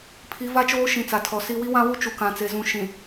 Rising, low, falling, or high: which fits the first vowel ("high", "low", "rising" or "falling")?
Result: rising